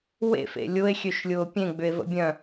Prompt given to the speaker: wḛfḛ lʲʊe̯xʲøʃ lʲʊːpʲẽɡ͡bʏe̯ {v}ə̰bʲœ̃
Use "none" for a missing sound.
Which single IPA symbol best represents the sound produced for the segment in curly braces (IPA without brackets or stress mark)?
v